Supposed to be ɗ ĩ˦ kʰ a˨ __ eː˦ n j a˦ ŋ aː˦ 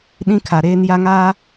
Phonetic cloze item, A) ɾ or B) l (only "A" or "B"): A